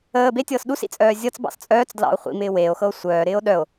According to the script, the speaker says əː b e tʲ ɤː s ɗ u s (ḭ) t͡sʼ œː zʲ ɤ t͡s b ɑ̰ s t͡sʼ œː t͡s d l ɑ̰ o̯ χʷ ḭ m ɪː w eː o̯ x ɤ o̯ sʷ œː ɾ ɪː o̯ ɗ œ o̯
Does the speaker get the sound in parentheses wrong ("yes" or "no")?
no